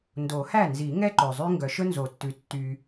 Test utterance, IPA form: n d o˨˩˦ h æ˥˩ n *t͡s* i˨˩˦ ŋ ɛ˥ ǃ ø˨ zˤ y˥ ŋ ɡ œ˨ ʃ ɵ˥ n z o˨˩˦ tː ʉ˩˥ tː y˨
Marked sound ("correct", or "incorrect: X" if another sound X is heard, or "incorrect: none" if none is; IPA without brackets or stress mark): incorrect: z